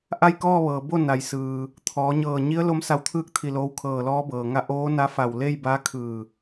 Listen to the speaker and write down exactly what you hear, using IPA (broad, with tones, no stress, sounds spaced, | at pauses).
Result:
ʔ a˥˨ j k ɔː˥˨ ʋ ɤː˩ b o˥˨ n a˩ j s ɯː˩ | t̪ʰ ɔː˩˧ ɲ ɤː˧˩ ɲ i˧˥ ə̯ l o˧˥ m s a˧ w t̪ʰ ɯː˥˨ k̚ t̪ʰ i˧˩ l oː˧ w kʰ ɤː˧˩ l ɔː˧˥ b ɤː˩ ŋ a˥˨ ʔ oː˧˥ n a˧˥ f a˧˩ w l e˥˨ j b a˧˥ kʰ ɯː˧˩